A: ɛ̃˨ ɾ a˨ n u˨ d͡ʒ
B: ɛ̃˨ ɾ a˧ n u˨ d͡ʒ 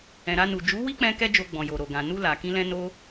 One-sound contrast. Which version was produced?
B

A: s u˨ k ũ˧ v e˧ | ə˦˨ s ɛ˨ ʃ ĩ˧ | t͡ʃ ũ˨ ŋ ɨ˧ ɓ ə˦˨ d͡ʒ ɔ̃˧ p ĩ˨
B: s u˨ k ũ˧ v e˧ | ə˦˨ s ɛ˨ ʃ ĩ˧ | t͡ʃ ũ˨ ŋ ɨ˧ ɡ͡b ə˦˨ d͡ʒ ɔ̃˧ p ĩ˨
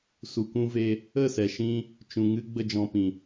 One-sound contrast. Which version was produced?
B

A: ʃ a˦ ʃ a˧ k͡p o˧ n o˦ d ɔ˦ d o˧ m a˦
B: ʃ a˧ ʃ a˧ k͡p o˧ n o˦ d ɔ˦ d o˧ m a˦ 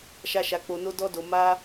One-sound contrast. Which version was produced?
A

